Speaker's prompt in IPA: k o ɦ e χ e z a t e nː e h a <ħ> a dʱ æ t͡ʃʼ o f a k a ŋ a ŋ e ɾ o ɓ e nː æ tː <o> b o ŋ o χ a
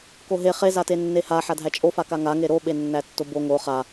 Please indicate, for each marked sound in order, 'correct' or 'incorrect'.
correct, correct

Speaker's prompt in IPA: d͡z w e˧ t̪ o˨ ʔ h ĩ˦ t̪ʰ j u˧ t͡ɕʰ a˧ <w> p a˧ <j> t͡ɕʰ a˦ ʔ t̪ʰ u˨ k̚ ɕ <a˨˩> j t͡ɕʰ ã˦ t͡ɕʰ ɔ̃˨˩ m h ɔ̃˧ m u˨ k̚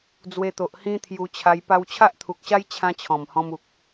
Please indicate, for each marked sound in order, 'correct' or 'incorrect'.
incorrect: j, incorrect: w, incorrect: a˦

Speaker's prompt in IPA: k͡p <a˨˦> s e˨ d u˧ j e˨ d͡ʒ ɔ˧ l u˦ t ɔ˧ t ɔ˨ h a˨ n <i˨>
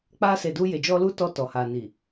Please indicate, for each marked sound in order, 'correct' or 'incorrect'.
incorrect: a˧, correct

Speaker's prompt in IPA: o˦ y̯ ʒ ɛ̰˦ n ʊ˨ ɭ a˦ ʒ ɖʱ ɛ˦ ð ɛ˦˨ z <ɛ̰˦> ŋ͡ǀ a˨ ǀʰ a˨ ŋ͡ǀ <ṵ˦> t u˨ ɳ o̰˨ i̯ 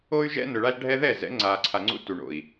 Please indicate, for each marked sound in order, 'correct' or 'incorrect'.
incorrect: ɛ̰˨˦, correct

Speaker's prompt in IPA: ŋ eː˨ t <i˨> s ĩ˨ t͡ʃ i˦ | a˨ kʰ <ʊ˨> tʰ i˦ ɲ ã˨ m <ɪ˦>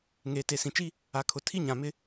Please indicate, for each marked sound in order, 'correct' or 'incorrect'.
incorrect: e˨, correct, correct

